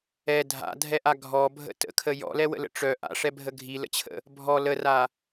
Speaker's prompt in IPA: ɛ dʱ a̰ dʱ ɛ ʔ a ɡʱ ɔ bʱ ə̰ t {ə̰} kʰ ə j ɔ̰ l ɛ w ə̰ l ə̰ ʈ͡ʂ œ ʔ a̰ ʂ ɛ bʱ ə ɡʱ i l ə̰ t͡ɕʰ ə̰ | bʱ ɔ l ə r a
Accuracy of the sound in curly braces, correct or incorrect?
correct